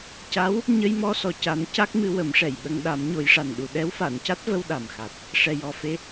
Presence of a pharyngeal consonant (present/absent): absent